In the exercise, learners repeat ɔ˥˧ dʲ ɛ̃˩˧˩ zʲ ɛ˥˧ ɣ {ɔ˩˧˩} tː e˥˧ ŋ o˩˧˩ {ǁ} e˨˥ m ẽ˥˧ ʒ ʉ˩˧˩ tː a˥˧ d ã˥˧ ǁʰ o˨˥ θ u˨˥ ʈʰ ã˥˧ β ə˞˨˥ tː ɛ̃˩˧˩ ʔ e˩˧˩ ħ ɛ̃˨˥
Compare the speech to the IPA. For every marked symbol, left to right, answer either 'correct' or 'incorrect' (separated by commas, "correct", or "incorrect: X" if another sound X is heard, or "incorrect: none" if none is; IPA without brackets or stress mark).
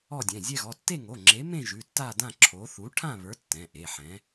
correct, incorrect: ŋ͡ǁ